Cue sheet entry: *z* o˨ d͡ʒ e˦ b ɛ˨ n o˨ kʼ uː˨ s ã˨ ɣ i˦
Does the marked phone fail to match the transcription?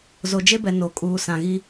no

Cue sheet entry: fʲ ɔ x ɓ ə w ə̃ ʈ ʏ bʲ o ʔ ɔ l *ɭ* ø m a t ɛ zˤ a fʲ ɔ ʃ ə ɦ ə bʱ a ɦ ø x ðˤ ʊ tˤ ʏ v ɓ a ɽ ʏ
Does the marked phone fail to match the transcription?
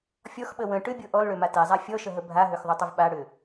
no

